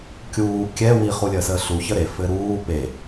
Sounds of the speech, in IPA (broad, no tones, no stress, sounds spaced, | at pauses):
kʲ uː kʲ ɛ w i χ u lʲ əː s əː ɬ u ç ə ɾ e f ɘ ɾ uː p e